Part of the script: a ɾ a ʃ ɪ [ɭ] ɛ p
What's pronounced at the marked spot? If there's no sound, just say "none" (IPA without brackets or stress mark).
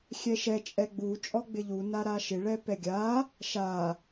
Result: ɭ